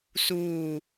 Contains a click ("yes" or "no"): no